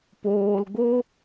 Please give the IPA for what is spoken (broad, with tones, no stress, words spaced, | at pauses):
poː˨lɡo˧